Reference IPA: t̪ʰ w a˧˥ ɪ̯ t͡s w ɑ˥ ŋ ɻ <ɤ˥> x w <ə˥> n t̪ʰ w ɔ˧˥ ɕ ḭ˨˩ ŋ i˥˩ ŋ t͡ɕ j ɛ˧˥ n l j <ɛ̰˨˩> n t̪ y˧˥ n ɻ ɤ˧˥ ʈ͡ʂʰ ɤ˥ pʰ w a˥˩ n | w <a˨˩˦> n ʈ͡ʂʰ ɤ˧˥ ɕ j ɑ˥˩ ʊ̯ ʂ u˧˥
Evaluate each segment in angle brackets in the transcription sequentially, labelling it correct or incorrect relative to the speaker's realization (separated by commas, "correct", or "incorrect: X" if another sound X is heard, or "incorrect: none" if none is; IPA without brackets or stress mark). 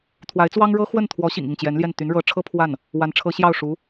correct, incorrect: ə˥˩, incorrect: ɛ˥˩, incorrect: a˧˥